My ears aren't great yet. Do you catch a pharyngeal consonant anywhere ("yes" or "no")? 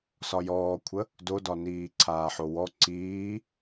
yes